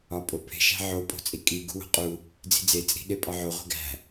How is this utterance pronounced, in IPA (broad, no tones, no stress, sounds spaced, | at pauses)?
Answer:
ɒ pʼ o pʰ e̤ ʃ æ̤ ʕ o pʼ o̤ t͡sʼ i kʼ i ɡ ṳ w o̤ qʼ u | d͡z i̤ d͡z e t͡sʼ i̤ ɗ e pʼ ɒ ʕ o ʁʷ e̤ ɡ æ̤